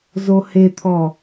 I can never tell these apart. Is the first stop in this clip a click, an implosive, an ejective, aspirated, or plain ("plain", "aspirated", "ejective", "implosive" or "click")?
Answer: aspirated